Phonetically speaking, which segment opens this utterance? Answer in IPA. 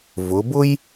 v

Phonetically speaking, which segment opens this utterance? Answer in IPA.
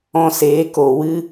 ɔ̃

